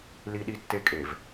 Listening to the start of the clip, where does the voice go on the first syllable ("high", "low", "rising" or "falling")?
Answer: high